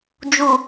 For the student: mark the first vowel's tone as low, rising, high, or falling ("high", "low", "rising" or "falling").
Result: low